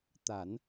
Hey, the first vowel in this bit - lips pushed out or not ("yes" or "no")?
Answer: no